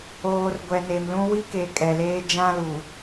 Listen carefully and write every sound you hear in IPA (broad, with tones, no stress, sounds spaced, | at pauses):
oː˨ r ɡʷ ɛ˨ n e˨ m l ũ˦ w i˦ k e˨ kʼ ɛ˨ l eː˦ d͡ʒ ã˦ l u˨